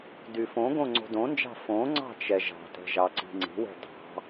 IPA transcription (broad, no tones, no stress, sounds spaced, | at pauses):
d y f õ ɡ õ ŋ͡ǀ o̤ d õ n d͡ʒ ɑ̤ f õ ŋ͡ǀ ɑ̤ t͡ʃ ɛ ʒ ɑ̤ t ɛ̤ ʒ ɑ ǀ i̤ ŋ͡ǀ i̤ w ɛ̤ d ɑ̤